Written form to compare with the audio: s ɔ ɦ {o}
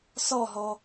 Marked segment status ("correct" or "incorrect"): incorrect